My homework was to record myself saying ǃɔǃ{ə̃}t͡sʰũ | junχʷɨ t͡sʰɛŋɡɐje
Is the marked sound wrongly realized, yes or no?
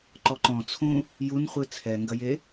yes